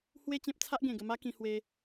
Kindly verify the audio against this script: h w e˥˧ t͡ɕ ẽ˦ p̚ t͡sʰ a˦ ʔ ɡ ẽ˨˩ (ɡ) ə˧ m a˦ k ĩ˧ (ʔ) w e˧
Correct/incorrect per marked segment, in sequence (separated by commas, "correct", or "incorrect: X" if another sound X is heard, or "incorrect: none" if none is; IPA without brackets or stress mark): correct, incorrect: h